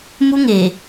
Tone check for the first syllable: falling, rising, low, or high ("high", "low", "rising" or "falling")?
high